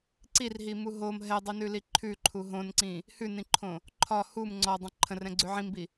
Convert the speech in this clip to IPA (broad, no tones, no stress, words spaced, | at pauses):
ǀirɦimu ɦom ɦɛdˤinʉli ǃʰʉǃʰu ɦõnǀĩ | hʉnĩǃʰõ | ǃʰɒ hum ŋ͡ǀɔdˤə̃ ǃʰə̃rɛ̃ɡ͡ǀʉ ʕĩmbi